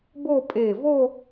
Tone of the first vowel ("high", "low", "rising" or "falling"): falling